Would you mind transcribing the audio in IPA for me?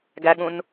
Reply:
ɡæɠũn

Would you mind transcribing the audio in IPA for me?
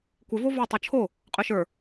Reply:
kʷɪ vovə˞ tˤot͡ʃʰo | qʼœʃə˞

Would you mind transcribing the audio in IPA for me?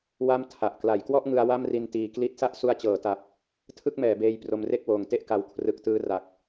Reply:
wa˥˩mtʰa˨˩ʔ kla˩˦jkwɔ˥˩ʔŋɯ˧a̯ wa˥˩mri˧ntiː˨˩ kli˦˥t̚sa˥˩ʔ su˧a̯t͡ɕɤː˩˦ta˨˩p̚ | tʰɯ˥˩k̚mɛː˩˦beː˧j pro˧mre˥˩k̚woː˨˩ŋte˥˩ʔ ka˧w kʰrɯ˨˩k̚tɯː˧ra˨˩k̚

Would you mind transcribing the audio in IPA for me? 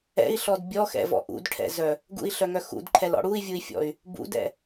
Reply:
ɛ̰i̯ɬɔd bʲɔxɛ̰vɔ̰ ʔṵdʈʰɛ̰zœ | ɡṵi̯ɬœŋœ xṵdǃʰɛlɔ̰ ɽui̯vʲui̯fʲɔ̰y̯ | bṵdɛ̰

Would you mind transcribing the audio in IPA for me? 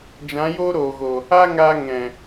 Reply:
d͡ʒã˨˦joː˦ɾoː˨ɣo˨ | a˦ŋaː˧ ŋɛ̃˨

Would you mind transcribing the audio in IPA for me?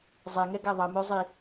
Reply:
zˤɛŋɛɡæ ðˤɐmœzˤi

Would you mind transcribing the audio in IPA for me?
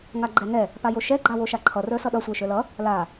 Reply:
ŋaɡ͡ǃɛŋɛ | pajoʃɛ ɡ͡ǃawoʃaǃʰʌ rə˞sʌɗʌ sʷə˞ʃə˞lʌ | la

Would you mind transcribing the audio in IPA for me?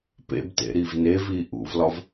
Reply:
pḛbtḛ ɾivnevi ʔṵvlɒv

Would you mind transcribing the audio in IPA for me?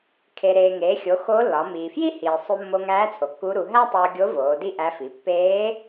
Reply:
kʰe˩ ɾeː˩ŋeː˩˧xʲo˩˧ xo˧˥lːɒ˩˧ miː˩fji˥hiː˩ sˤu˧mːo˧ŋæː˧˥ t͡sʰo˩kːu˧˥ɾu˩˧ ɦæ˥tˤoː˧ɡʲo˧˥ voː˩˧di˥ʔæ˧˥fi˩˧ pːeː˧˥

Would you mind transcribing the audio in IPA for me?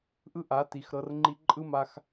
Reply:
ʔɯ˦ʔa˨˦ti˨xɾɤ˧r ŋ͡ǃi˧ǃʼɯ˦ma˧x

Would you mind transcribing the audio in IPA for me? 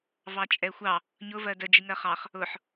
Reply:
vɑt͡ʃʼɛxʷɑ | ɲʊ vɜdə d͡ʒiŋɜχɑχ | ʊħ

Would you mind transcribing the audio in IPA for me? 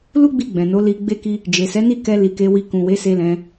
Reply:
lu˦ɡ͡bi˧ɡ͡bɛ̃˨ no˨˦li˧ɡ͡be˦ki˦ | d͡ʒe˨sɛ˨˦ni˦˨ kɛ˧ li˨ ke˧wi˧ kũ˨we˨˦se˧lɛ̃˧

